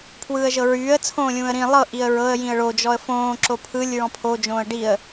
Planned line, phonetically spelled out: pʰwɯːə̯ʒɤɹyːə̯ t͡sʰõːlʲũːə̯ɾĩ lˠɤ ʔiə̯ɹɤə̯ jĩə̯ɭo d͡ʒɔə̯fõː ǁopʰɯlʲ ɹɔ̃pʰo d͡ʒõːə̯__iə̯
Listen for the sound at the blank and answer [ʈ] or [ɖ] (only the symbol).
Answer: ɖ